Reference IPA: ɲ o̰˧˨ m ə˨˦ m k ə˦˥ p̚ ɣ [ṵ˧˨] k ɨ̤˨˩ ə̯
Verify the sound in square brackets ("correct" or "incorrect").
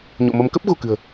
incorrect